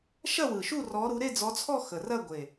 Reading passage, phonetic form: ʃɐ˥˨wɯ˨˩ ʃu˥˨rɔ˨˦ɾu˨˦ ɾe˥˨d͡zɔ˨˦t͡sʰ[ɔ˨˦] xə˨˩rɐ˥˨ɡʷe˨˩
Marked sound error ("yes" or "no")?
yes